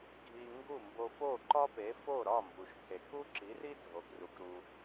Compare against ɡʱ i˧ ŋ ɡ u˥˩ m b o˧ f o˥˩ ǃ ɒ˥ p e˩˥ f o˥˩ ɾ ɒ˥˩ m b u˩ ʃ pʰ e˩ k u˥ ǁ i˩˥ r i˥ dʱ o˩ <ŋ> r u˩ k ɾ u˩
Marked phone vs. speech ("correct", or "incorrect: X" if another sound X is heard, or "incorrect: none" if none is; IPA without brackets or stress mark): incorrect: ɡ